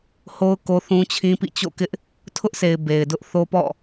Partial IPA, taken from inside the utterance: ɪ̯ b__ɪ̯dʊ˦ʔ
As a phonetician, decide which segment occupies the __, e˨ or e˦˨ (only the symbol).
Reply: e˨